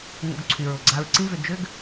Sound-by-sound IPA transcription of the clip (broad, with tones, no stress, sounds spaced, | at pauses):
ŋ o̰˧ ɡ ǀʰ y˩ ɹ ʊ˩ ɡ͡ǀ a˧ ɹ ǀ ĩ˥ v ʏ˧ d͡ʒ ʏ˥ ɡ